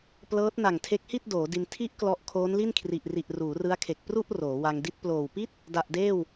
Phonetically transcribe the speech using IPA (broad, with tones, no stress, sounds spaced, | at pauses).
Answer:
p l ɤː˦˥ t̚ n a˨˩ ŋ tʰ e˦˥ k̚ h i˥˩ t̚ d oː˩˦ d i˧ n tʰ i˦˥ ʔ k l ɔ˦˥ ʔ kʰ oː˦˥ n l i˥˩ n kʰ r i˨˩ ʔ r i˨˩ ʔ r uː˩˦ r ɯ˦˥ a̯ kʰ e˨˩ k̚ p r u˥˩ ʔ r oː˩˦ w a˧ ŋ d i˦˥ t̚ p l oː˨˩ w p i˥˩ t̚ | d a˨˩ ʔ d eː˥˩ w